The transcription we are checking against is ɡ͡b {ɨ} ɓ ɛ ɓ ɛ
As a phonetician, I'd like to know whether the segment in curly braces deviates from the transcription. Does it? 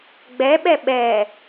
yes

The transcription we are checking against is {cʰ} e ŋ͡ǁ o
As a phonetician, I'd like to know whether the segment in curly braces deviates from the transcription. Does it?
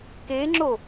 yes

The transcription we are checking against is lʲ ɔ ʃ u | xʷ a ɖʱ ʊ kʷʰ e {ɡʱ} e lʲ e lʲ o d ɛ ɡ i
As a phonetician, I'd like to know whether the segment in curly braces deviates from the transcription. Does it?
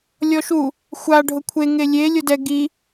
yes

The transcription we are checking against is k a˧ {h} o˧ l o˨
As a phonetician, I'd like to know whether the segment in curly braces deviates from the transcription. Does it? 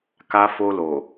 yes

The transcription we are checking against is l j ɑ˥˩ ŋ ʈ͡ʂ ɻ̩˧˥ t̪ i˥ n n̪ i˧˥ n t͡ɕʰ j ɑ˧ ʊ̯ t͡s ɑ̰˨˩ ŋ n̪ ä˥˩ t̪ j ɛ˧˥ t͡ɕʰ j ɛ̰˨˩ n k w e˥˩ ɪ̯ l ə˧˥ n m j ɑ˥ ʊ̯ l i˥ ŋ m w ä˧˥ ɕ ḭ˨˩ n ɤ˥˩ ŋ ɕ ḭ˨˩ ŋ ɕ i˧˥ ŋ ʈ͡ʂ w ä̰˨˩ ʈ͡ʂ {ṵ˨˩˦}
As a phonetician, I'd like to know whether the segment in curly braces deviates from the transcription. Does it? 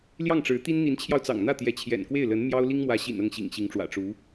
yes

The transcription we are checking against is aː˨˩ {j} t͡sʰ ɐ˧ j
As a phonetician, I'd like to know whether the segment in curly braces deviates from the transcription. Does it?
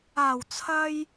yes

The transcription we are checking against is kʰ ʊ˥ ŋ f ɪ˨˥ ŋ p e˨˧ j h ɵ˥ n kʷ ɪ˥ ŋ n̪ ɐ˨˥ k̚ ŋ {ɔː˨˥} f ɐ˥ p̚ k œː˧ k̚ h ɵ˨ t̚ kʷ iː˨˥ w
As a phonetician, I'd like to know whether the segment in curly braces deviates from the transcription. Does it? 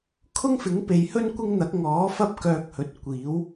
no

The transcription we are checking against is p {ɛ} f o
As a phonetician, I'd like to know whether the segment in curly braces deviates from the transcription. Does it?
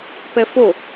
no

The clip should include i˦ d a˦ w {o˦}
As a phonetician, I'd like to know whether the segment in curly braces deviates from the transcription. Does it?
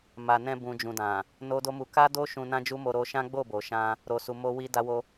no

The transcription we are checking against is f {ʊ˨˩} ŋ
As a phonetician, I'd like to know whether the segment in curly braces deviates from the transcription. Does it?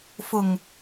no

